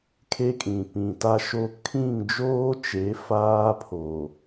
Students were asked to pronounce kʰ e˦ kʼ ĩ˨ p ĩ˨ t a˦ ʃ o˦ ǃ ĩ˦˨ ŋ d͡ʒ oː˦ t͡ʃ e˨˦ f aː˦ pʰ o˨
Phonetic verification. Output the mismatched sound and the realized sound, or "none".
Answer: ǃ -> kʰ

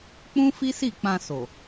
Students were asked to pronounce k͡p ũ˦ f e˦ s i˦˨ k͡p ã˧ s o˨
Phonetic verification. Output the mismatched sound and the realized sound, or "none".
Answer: e˦ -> i˦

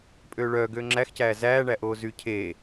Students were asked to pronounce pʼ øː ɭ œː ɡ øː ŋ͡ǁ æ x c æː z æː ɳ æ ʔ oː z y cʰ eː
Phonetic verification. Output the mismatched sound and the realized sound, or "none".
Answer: none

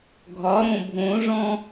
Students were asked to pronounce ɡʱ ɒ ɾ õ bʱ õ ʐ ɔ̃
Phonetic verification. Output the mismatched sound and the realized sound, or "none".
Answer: none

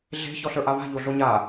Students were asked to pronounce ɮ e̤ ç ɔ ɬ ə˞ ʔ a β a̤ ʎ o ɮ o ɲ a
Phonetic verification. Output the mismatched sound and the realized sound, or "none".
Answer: none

